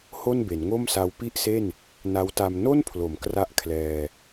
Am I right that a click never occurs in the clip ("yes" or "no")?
yes